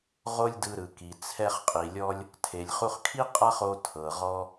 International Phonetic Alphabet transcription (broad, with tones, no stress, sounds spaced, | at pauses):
ʁ o˥ lʲ d ɯ˧ ɾ ɯ˩ k i˩ t͡sʰ ɛ˧ χ qʼ i˩ lʲ ɔ˧ lʲ | tʰ e˩ lʲ χ u˧ χ kʰ i˥ qʼ a˥ χ o˧ tʰ ɤ˩ ʁ ɔ˧